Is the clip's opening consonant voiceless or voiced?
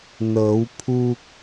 voiced